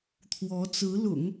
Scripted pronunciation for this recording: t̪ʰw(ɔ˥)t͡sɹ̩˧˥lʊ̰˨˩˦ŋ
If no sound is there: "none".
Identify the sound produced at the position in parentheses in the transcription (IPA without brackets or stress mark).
ɔ˧˥